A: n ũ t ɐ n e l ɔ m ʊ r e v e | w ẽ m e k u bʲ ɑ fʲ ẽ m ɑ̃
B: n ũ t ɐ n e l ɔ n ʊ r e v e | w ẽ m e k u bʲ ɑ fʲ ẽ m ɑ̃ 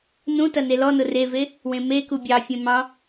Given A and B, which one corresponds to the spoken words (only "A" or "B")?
B